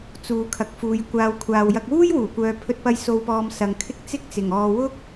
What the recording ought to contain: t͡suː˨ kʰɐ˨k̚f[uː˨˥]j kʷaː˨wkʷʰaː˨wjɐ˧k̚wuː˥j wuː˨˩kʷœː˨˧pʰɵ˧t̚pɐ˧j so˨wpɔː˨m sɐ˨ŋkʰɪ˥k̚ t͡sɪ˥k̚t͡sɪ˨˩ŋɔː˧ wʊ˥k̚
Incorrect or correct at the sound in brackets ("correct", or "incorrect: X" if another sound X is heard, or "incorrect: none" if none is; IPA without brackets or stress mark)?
incorrect: uː˨